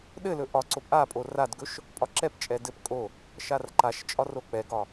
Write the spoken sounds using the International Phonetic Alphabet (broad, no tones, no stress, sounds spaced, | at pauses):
ɗ ɘ l ɵ ʔ ɒ ǀ o p ʔ a pʼ o r a d ɡ ɵ ʃ | pʼ ɒ ǁ ɛ p t͡ʃʼ ɛ d ɘ p kʼ o | ʃ a r ǃ a ʃ t͡ʃʼ ɒ r o k͡p ɛ ɡ ɒ